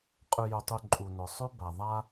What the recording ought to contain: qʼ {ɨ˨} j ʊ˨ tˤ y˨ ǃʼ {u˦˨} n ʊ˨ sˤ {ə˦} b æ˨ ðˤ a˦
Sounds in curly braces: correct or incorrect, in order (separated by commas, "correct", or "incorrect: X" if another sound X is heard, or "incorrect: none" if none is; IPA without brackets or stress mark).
incorrect: ʉ˨, incorrect: u˨, incorrect: ʉ˦